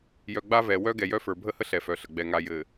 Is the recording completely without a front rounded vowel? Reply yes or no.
no